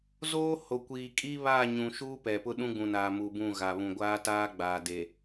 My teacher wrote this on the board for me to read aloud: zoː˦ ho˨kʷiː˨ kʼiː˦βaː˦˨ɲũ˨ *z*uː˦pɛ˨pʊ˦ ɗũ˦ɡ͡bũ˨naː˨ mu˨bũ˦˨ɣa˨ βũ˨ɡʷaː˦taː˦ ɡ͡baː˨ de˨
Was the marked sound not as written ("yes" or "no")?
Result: yes